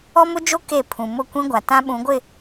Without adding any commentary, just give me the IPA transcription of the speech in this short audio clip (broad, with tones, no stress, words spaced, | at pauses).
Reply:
ɔ˦mʊ˦d͡ʒo˦ ke˦˨pʰũ˨ mʊ˦˨kʷĩ˦ɡʷa˨ tã˦ɓũ˨˦ɡʷɪ˦˨